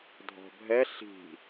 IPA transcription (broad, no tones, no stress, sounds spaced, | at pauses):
dʱ ɔ̤ bʱ ɛ ɬ i̤